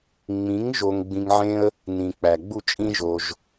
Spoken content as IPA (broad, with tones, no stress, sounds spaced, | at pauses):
ŋ͡m ĩ˨˦ ŋ ʒ o˧ ŋ ɡ͡b ĩ˧ ŋ ʕ ẽ˦ ə̯ | n ĩ˨ k͡p æ˨ ɡ͡b u˦˨ t͡ʃʼ ĩ˦ ʒ o˧ ʒ